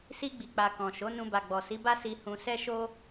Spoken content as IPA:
si˧ɡ͡bi˨k͡pa˨ kɔ̃˨ʃo˨˦ nũ˧ba˨ɡ͡bɔ˨ si˨˦ba˦ si˧hũ˧ sɛ˦ʃo˦

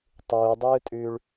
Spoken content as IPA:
tˤuːdˤɯːtʼʉːɭ

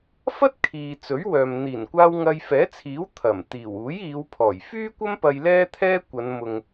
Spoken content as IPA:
fɐ˥t̚ kʰiː˨ t͡sɵ˨˥ɥwœː˨m n̪iː˨˩nkʷaː˧w ŋɐ˧jfɛː˨˥t͡sʰiː˨˥w t̪ʰɐ˨˩m t̪iː˨˩wuː˨˥jiː˨˧w pʰɔː˨˩jfyː˥kʷɐ˥mpɐ˧j lɛː˥t̪ʰɛː˥kʷɐ˨˧nmʊ˨ŋ

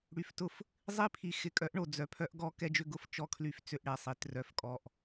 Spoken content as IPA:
ɽy˨ftʊ˦f | zˤi˦pʰi˨ xɪ˨kʼœ˨˦ʔɳo˨ d͡zœ˨pʰœ˦ʔɡɔ˦ kɛ˦d͡ʒʏ˦ɡʊ˦f t͡ʃɔ˦kʰly˦f t͡sʏ˦˨ʔɽɛ˦˨sˤi˨ trœ˨fkʼɔ˨ʔ

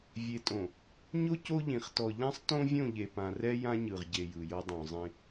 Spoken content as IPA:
vʲe˨tʼõ˨ | ɲo˦ co˦ʎĩ˨χ tɔ˨ ʎã˦sˤtõ˦vʲõ˦˨ ʎe˨pã˨rɛ˦ jã˦ɲɯ˨ʁ ɟe˨ jɯ˨jɤ˦ dˤũ˨zˤĩ˦

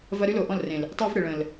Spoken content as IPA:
vɐ˦ ɾy˦lo˨ʔɔ̃˦˨l rẽ˨l | tˤi˦v ɽɪ˨ɭə̃˨l

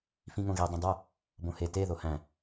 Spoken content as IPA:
fĩŋõɣi dˤẽdˤo | bõhe te ðohæ̃

